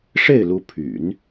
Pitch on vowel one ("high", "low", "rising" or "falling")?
falling